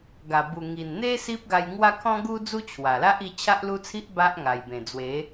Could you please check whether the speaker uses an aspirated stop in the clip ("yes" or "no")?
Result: yes